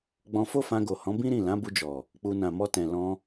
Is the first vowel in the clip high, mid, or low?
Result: mid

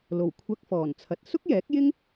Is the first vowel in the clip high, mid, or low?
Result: mid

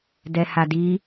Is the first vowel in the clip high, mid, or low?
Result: mid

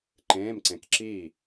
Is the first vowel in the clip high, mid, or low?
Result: mid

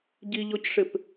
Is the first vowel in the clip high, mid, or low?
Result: high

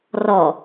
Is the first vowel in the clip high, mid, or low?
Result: mid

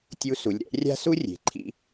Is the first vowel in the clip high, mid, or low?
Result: high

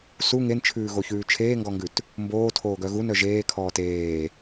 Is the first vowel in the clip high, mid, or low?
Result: high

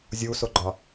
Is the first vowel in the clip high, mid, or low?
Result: high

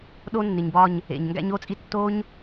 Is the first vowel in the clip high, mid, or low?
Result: mid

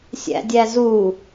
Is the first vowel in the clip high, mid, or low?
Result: low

